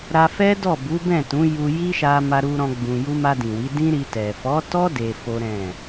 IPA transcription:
ɾ a˧ f ɛ˦ d ɔ˦˨ b u˨˦ b ɛ̃˦˨ t ũ˨˦ j u˧ j i˦ ʃ a˧ m a˦ ɾ u˦ ɾ ɔ̃˦ ɡ͡b ũ˧ j u˦ m a˧ d ĩ˨ w i˨˦ d ĩ˦ ɾ i˧ t ɛ˨ f ɔ˨˦ t ɔ˦ d e˧ f o˦ ɾ ɛ̃˦˨

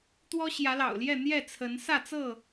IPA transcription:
t̪ w ɔ˦ ɕ j ä˨˦ l ɑ̰˨˩ ʊ̯ l j ɛ˥˨ n̪ j ɛ˥˨ t͡sʰ ə˨˦ n s ä˥˨ t͡s ɤ˥˨

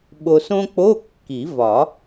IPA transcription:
ɓ o˧ s õ˥ k͡p o˧˥˧ kː i˨˩˦ v ɒ˨˩˦

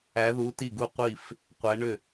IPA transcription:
æ˧˥ ð u˧˥ t i˥˩ ɡ u˥˩ qʷ i˥˩ f | qʷ æ˧˥ ɳ ʏ˥˩

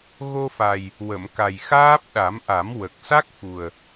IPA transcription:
ɣ o˧ f a˨˩ j | w ə˨˩˨ m k a˨˩ j x aː˦˥ p̚ ɗ a˨˩˦ m ʔ a˨˩˦ m w ə˨˩ k̚ s a˦˥ k̚ f u˨˩ ə̯

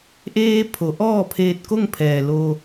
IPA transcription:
ʔ eː˧ pʰ o˩˧ ʔ ɔː˥˨ pʰ eː˧ t̚ k o˥˨ ŋ pʰ ɛː˩ l o˧

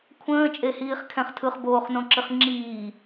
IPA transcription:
kʷʰ ə̃ː t͡ʃʼ e h iː χ kʰ ɛ̃ χ tʰ ɯ χ b oː χ n õ ǁ ɨ χ ŋ͡ǁ iː

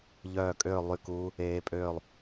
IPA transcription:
ʎ œː˥˧ kʼ øː˥˧ lˠ y˥˧ k uː˦˥ | eː˦˥ pʼ øː˥˧ lˠ

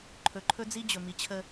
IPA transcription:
ǃʰ ɵ˨ ǃʰ ɵ˦ d͡z i˦ d͡ʑ ɵ˨ m i˨ t͡ɕʰ ə˦

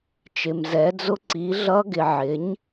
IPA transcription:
t͡ʃ ɪ˨ m z ɛ˩˥ d͡z ʊ˧˥ ǀ i˩˥ ɮ ʌ˧˥ ɡ ɪ˨ ʕ ɪ˩˥ ɲ

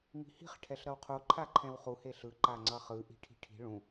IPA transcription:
m i̤ h i̤ χ ʈʰ ɛ ɬ ɾ ʌ w qʰ o ǃʰ a ǃʰ ɛ̃ w χ u h e ɬ ɯ ǃ a ŋ͡ǀ ʌ χ ɯ ʔ i̤ ʈʰ i̤ ʈʰ i̤ ɭ ũ

